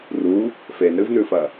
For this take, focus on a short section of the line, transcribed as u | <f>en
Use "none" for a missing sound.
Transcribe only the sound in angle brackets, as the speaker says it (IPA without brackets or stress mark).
f